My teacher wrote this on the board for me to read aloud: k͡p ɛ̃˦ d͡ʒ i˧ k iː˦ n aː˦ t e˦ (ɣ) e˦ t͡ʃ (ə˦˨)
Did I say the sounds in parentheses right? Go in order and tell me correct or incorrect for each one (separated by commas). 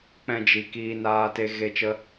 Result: correct, incorrect